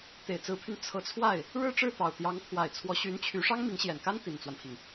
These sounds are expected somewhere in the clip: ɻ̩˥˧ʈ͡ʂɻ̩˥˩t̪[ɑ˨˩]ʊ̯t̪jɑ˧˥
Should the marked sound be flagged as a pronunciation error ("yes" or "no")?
no